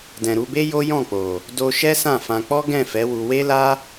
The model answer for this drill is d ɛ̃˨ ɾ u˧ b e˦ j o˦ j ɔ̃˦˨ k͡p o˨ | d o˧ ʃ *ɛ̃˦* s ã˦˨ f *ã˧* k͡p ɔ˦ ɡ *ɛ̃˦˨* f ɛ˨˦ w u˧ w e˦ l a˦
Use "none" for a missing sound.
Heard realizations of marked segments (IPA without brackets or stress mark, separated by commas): ɛ˦, ã˧, ɛ̃˦˨